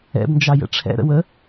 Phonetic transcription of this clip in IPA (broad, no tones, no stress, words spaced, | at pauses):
ɛ̰bnd͡ʒɑ jə̰ʈ͡ʂʰɛ̰ɾə̰ wə